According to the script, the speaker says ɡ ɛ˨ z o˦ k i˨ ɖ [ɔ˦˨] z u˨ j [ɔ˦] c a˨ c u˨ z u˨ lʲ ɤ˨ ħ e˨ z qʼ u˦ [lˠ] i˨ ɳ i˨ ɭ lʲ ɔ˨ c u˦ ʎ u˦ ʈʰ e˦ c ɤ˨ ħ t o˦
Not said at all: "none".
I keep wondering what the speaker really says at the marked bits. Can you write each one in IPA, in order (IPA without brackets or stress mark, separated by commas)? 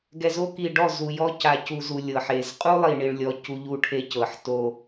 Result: ɔ˦˨, ɔ˦, lˠ